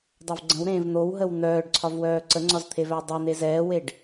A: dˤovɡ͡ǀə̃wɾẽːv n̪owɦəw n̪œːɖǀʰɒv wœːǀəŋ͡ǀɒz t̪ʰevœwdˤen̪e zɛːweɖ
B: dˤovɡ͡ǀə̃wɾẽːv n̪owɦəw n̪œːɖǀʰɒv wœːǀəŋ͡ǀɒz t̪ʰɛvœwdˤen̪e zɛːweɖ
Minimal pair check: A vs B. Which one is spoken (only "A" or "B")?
A